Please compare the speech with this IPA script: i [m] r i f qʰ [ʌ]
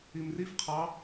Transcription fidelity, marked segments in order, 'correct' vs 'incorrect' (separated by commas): correct, incorrect